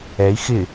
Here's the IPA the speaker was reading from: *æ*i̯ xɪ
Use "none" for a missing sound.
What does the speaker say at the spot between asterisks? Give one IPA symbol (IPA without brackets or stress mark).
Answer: ɛ